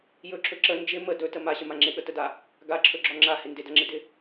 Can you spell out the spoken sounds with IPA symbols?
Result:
j ɵ ǁʰ ɵ ǁ ə n d͡ʒ ɪ m ə d ɵ t ə m a ɕ ə m a ŋ͡ǁ ɪ ɠ ə t ə d a | ɡ a ǁʰ ɵ ɡ͡ǁ ɔ ŋ͡ǁ a h ɪ n d ɪ d ʌ ŋ͡ǁ ɪ d ɪ

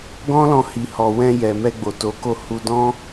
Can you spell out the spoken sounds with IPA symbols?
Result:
ɡ ɔ̃˦ l ɔ̃˧ h i˨ h ɔ˨ w ɛ̃˧ j ɛ˨ m ɛ˧ ɡ͡b o˨ t o˨˦ k o˧ h u˧ d ɔ̃˦

